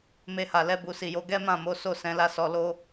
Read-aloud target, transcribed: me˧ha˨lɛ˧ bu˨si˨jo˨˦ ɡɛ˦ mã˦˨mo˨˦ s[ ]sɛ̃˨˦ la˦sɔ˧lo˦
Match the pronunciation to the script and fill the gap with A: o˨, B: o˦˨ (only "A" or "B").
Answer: B